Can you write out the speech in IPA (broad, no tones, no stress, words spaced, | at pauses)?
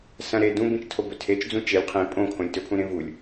sɐ̃ ɾe dũbĩt͡ʃtʰo bɵtʰet͡ʃd͡zũ t͡ʃelʲ qʰĩ pʼõkʰõlʲtɵpʰũ ɾẽvulʲ